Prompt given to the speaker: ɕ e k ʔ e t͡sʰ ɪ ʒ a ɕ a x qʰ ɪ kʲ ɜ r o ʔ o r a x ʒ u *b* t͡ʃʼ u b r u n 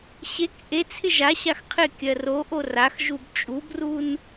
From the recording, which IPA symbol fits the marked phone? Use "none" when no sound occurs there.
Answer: b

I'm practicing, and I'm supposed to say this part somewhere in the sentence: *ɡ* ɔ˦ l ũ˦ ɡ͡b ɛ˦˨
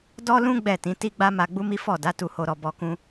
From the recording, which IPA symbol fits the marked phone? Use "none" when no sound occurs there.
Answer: d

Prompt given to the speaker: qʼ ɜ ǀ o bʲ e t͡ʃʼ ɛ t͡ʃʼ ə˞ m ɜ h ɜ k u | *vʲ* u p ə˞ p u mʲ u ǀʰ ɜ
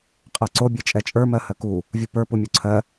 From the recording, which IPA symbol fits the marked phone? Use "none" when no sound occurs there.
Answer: vʲ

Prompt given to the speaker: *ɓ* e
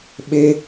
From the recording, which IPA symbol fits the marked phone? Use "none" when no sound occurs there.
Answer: ɓ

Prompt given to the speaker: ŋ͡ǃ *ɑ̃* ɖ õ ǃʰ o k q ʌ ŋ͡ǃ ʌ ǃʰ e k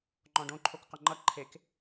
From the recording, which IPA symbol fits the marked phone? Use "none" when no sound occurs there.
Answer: ɔ̃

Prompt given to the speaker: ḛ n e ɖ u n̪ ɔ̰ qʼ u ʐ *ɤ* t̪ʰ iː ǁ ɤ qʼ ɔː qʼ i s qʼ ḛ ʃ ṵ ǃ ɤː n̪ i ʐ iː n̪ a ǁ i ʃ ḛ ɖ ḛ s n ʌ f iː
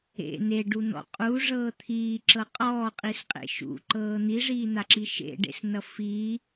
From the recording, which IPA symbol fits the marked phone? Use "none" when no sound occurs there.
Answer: ɤː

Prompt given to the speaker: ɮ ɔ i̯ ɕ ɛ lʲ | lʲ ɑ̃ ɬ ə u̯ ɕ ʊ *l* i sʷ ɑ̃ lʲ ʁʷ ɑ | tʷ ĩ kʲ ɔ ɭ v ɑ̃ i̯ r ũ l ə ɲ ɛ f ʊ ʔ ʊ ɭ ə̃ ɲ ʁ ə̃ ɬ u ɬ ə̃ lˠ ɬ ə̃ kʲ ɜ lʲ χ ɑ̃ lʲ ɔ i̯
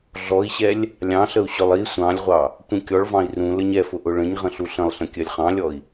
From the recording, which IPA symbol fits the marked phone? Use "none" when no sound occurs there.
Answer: lˠ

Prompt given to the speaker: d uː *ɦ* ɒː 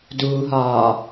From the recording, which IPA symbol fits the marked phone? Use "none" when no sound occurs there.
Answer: ɦ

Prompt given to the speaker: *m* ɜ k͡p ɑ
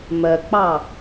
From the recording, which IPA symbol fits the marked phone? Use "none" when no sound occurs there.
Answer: m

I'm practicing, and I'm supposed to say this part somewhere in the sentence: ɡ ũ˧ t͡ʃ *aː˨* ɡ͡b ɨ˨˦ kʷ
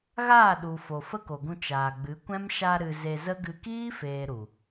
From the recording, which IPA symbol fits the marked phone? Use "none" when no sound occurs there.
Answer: aː˨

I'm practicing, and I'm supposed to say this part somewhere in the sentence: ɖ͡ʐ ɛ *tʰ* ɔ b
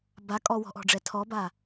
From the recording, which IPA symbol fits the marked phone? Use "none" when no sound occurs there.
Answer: tʰ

